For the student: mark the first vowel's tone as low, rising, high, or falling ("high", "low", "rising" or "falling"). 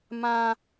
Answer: low